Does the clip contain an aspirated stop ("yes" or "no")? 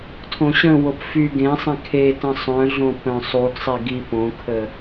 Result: yes